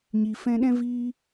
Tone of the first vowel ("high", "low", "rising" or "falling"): low